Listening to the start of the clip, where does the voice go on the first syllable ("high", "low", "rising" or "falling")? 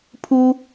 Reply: high